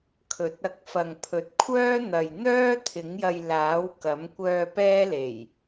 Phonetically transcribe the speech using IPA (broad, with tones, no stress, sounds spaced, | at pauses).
kʰ ɵ˨˥ t̚ ɐ˧ k̚ f ɐ˨ ŋ pʰ ɵ˨ t̚ kʷʰ œː˥ n̪ ɐ˨ j n̪ œː˥ t̪ʰ ɪ˨˥ ŋ j ɐ˧ j l aː˨˥ w k ɐ˨˥ m kʷ œː˧ p ɛː˥ l e˨˩ j